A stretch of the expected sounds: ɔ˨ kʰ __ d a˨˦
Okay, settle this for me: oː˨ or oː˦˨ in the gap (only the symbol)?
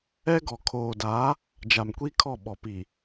oː˨